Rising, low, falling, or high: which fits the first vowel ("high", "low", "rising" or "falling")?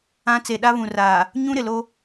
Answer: high